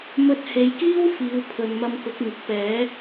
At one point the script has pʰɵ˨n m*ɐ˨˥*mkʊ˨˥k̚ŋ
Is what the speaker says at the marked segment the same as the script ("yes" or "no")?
no